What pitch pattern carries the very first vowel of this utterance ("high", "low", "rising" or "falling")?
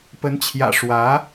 rising